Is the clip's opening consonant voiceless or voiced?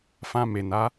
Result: voiceless